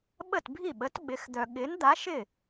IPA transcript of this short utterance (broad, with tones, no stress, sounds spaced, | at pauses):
ɓ ə˥˩ t bʱ i˥˩ ɓ ə˨˥ t ɓ ɪ˨˥ x d̪ œ˧ ɠ ɪ˨˥ n d̪ a˨˥ ʃ ɪ˥˩